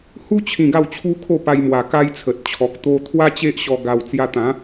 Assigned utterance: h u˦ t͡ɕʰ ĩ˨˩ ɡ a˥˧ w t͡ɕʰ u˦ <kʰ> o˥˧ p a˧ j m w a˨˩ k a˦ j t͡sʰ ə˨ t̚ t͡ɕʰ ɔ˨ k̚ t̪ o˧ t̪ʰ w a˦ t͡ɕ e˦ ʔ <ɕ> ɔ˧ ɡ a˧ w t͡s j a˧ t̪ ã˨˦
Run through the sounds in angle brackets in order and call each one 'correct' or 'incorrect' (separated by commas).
correct, correct